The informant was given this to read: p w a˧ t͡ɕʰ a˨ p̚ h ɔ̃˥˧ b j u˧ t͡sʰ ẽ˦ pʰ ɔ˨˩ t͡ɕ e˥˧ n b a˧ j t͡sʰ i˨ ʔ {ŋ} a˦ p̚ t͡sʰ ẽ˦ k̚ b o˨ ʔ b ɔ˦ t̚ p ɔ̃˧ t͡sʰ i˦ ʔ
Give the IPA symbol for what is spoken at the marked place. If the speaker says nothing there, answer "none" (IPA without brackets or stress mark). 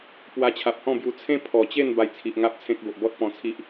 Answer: ŋ